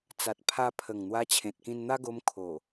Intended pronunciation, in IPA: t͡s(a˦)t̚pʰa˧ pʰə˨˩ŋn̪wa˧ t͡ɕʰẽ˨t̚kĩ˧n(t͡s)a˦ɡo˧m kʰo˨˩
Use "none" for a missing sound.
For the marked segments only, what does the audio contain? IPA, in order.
a˨, n̪

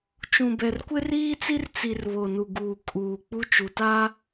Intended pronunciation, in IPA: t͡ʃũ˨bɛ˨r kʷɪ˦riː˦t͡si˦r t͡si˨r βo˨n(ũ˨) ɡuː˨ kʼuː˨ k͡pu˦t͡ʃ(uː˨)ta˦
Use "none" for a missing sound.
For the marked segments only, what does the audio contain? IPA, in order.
u˨, u˨

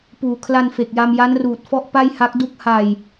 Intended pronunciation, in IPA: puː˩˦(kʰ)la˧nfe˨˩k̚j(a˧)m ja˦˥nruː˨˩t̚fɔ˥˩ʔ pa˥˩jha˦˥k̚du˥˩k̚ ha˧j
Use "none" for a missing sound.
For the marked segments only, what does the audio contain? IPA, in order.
kʰ, a˧

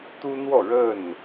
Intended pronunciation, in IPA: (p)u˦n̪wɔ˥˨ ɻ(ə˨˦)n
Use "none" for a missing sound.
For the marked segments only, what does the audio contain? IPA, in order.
t̪, ə˥˨

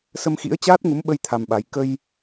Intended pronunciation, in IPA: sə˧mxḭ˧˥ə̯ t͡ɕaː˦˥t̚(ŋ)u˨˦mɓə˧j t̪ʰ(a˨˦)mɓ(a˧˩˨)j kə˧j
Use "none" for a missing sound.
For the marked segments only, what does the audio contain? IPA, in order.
ŋ, a˧, a˨˦

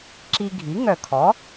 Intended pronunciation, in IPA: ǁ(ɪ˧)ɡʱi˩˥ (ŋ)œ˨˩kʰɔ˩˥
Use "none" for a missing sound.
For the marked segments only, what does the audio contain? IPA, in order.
i˧, ŋ

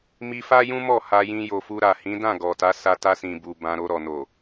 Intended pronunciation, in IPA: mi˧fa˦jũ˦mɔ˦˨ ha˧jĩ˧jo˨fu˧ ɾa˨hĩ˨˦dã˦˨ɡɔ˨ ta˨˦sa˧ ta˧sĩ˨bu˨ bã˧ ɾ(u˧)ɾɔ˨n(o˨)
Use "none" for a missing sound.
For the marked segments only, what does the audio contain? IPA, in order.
o˧, o˨

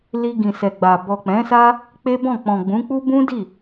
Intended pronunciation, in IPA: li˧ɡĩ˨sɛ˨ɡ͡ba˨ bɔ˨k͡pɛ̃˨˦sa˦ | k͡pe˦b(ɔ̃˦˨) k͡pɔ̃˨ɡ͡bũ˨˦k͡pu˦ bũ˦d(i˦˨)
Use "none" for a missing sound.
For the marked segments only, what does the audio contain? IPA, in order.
ɔ̃˦˨, i˦˨

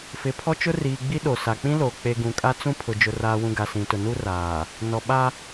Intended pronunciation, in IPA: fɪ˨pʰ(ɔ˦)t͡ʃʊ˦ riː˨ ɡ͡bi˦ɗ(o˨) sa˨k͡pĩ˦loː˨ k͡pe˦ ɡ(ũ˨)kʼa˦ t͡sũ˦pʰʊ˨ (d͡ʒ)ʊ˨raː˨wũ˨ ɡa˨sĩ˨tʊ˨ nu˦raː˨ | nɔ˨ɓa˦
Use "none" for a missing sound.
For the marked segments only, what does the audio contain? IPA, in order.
ɔ˦, o˨, ũ˨, d͡ʒ

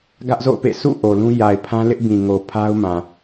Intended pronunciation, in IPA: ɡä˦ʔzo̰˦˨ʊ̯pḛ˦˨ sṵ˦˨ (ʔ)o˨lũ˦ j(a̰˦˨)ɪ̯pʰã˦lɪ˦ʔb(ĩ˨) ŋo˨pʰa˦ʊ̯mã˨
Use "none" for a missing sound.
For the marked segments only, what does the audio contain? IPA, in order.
ʔ, a˨, ĩ˨

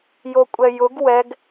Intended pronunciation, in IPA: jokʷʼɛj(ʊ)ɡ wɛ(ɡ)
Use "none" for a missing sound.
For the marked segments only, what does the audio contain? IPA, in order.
ʊ, ɡ

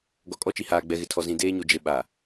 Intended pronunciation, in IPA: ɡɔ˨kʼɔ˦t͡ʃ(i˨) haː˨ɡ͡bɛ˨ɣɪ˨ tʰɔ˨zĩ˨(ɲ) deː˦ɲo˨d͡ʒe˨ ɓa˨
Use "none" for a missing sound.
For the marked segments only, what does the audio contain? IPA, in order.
i˨, none

